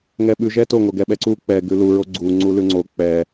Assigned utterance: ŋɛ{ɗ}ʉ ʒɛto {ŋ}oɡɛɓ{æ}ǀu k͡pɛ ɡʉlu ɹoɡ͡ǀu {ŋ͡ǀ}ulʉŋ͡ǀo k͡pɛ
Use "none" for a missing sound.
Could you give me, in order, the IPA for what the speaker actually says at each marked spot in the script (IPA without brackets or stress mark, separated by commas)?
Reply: ɓ, ŋ, ɛ, ŋ͡ǀ